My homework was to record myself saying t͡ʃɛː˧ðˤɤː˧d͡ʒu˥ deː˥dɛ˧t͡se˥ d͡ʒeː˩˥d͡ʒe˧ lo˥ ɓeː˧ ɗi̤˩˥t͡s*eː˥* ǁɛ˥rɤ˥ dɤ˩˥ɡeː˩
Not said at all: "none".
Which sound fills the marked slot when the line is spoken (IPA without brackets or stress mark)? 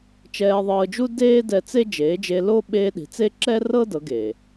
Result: e˥